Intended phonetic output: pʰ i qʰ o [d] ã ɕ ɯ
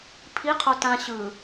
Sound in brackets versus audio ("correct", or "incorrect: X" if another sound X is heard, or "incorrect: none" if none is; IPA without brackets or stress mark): incorrect: t